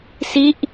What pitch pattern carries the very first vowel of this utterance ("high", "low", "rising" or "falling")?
falling